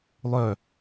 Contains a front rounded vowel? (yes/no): yes